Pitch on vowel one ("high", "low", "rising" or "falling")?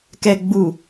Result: low